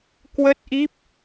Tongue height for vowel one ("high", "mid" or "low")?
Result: mid